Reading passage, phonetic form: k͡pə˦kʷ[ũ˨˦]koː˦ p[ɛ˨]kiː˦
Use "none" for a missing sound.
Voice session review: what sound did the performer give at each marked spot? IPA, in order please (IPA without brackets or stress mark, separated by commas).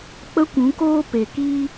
ũ˨˦, e˨